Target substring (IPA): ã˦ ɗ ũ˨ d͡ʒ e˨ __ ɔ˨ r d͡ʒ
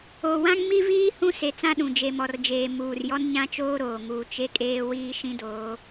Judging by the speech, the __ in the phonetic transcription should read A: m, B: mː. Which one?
A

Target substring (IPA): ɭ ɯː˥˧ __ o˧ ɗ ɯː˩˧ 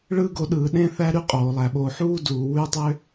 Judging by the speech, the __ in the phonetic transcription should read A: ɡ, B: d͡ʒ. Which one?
A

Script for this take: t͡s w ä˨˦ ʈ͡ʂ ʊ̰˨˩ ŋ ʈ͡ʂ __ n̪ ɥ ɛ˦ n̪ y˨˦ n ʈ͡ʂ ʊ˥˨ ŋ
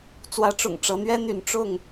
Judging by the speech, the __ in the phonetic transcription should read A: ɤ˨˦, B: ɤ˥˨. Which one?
A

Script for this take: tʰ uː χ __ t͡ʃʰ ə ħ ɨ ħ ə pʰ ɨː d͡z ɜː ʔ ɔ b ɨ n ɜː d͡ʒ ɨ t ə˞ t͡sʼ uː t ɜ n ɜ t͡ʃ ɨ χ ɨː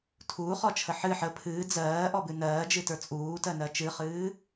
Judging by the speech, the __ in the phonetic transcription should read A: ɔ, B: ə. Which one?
A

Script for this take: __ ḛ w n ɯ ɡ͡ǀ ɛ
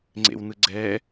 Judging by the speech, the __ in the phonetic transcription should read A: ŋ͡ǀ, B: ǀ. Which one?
A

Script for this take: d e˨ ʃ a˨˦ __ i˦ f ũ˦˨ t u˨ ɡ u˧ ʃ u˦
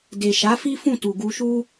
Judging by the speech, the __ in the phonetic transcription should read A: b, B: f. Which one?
B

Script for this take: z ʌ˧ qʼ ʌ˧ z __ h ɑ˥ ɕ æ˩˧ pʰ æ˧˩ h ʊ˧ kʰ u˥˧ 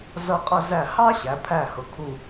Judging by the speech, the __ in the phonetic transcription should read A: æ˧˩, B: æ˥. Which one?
A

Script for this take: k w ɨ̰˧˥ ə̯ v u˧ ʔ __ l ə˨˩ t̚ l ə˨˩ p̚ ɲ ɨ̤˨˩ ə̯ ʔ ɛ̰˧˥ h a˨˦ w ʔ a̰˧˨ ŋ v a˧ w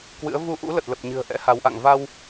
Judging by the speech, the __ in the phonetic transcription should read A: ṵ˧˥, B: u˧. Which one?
A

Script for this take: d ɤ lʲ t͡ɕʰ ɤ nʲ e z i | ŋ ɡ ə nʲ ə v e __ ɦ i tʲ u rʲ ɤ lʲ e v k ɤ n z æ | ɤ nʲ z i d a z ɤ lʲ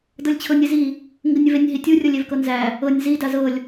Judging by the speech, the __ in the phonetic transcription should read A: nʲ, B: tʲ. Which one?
A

